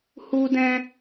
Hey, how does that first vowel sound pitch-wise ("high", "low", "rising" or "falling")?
high